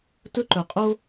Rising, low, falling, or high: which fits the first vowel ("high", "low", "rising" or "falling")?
high